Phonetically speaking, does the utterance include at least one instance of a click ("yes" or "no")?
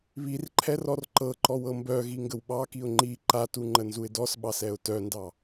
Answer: yes